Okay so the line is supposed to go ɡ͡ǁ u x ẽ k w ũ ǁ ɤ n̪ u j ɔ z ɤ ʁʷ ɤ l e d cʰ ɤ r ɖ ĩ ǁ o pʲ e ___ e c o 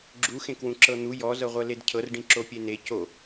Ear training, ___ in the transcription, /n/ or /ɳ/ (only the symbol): n